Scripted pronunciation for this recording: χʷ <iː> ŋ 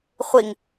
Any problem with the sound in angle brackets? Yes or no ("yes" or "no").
yes